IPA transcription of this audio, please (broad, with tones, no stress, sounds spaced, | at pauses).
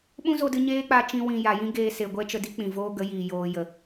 ɓ ũ˦ z o˧ d ɨ˧ ɲ eː˦ k͡p a˧ t͡ʃ ĩ˧ w ĩ˨ j a˨ j ĩ˦ ɡ eː˧ s e˨ ɡʷ ɛ˦ t͡ʃ ə˧ d i˦ k͡p ĩ˨ v oː˦ ɡ ə˨˦ j iː˨ j oː˨ j ə˨